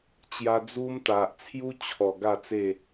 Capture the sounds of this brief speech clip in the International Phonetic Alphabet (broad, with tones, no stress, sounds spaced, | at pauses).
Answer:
t͡ɕ j a˧ d͡z u˦ m t̪ a˨ ʔ t͡sʰ j u˦ t͡ɕʰ ɔ˨˩ ɡ a˥˧ t͡s e˥˧